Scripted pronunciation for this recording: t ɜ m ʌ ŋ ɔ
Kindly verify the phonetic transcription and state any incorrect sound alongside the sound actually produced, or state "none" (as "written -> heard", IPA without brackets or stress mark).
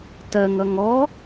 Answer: m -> ŋ